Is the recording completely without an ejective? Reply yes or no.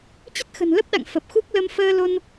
yes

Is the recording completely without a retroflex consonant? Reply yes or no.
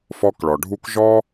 no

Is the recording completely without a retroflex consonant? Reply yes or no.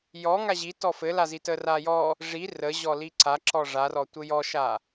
no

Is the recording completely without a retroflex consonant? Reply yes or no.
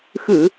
yes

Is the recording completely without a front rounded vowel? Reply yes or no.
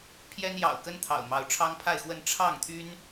no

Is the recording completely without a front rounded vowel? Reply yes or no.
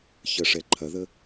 yes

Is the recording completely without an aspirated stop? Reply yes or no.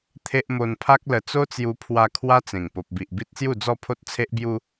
no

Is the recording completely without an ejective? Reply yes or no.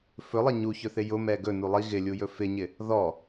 yes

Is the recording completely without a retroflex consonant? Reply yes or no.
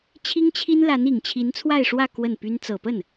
no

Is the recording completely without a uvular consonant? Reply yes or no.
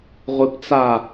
no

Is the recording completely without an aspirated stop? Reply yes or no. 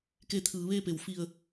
no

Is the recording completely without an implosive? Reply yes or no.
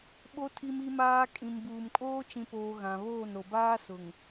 no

